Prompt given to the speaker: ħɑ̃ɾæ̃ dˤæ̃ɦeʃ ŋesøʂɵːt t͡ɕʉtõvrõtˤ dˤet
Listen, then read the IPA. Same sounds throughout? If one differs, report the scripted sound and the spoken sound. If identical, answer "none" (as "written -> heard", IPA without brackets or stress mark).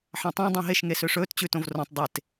ɾ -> tˤ